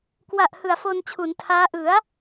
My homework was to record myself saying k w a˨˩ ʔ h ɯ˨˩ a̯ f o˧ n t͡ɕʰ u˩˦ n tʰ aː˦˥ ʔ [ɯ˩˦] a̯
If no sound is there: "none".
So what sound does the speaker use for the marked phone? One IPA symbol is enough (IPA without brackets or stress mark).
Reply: ɯ˩˦